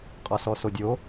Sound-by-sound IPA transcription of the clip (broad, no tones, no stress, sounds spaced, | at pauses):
qʼ ɒ s ɔ s o dʲ o